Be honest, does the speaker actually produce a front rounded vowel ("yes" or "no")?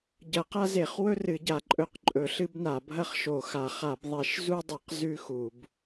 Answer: no